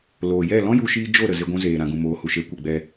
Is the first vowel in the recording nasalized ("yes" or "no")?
no